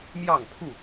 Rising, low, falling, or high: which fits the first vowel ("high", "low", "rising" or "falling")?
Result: falling